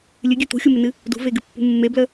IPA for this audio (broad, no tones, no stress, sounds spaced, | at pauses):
lʲ ɨ ɡʲ ʉ t̪ ṳ xʲ u m ɪ n ɨ | d ṳ v e ɡ ɨ pː ṳ mː e b l ə